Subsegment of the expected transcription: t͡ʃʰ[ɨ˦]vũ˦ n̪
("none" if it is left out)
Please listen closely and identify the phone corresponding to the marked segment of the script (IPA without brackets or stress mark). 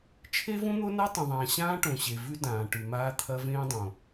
e˦